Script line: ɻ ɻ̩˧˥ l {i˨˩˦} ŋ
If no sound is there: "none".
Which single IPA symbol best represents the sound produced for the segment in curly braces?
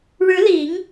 i˨˩˦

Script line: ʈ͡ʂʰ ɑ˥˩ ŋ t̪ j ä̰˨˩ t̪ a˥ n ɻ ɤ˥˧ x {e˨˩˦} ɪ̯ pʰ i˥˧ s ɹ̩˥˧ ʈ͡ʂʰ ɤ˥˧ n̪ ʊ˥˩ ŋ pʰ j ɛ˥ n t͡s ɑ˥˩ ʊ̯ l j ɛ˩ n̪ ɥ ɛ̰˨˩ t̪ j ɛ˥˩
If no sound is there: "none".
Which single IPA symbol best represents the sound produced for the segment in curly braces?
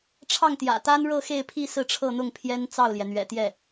e˥˧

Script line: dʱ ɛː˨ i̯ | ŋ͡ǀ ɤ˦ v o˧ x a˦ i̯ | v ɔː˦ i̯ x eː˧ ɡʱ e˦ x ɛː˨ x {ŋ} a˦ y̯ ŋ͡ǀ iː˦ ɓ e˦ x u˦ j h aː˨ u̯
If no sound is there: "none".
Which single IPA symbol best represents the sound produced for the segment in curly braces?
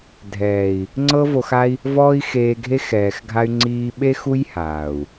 ɡʱ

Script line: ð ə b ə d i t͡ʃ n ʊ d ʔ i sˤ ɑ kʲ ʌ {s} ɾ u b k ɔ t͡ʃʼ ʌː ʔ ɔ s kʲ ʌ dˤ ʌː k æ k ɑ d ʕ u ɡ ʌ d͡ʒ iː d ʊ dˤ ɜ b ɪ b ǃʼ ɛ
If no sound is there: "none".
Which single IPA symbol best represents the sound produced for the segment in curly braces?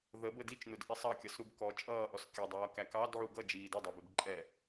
s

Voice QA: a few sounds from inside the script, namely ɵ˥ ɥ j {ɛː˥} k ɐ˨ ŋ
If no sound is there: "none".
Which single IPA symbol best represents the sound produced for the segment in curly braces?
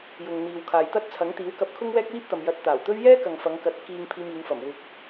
ɛː˥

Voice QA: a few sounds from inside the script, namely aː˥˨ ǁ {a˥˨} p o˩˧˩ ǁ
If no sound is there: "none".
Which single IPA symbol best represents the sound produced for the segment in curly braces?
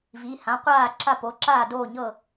a˥˨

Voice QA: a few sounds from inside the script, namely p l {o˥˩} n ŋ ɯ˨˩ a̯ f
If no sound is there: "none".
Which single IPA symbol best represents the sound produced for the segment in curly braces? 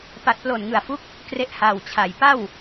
o˨˩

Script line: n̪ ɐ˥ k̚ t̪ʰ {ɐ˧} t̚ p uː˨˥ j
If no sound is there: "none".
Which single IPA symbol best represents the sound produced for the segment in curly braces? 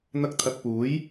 ɐ˧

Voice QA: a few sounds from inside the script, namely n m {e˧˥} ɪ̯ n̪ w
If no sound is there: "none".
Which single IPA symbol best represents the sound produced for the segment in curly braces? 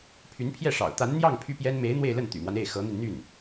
e˧˥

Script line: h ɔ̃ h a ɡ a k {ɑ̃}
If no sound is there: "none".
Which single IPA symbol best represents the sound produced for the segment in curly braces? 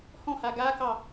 ɑ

